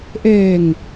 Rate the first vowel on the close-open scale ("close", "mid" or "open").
mid